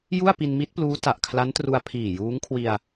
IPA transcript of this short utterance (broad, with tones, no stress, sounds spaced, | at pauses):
j u˥˩ a̯ p i˧ n m i˦˥ t̚ p l uː˦˥ t a˨˩ ʔ kʰ l a˦˥ n t r u˧ a̯ pʰ iː˨˩ j uː˦˥ ŋ kʰ w i˧ a̯